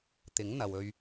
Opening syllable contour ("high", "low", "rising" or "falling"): rising